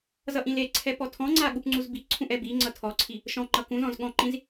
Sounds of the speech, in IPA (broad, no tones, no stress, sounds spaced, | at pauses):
z ʌ ʔ ĩ l e ǀʰ ɛ p ɔ tʰ ɔ̃ ŋ͡ǀ a ɠ u p ŋ͡ǀ u z b i ǀʰ ũ ʔ ɛ b i ŋ͡ǀ ʌ tʰ ɔ ǀʰ i | ʃ ɔ̃ ŋ͡ǃ ʌ k ũ z ɔ̃ z ɠ ɔ̃ ǃ ĩ z